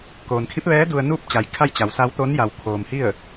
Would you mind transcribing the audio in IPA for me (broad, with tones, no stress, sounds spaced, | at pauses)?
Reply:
k oː˩ n kʰ i˧˥ p̚ ʋ ɛː˧˥ d u˧ ə̯ n uː˥˨ p̚ t͡ɕ a˩ j kʰ a˥˨ j t͡ɕ a˩˧ w s a˧˥ w t̪ o˧˥ n j a˩ w kʰ oː˩ m h i˥˨ ə̯